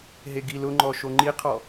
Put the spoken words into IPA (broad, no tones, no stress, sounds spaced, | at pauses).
ɦ e ɡ i l ʊ ŋ͡ǃ ɔ ʃ o ŋ͡ǃ i qʰ ɔ